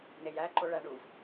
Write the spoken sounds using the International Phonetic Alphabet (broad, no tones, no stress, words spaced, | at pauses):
nejæǃo ɭæɳuv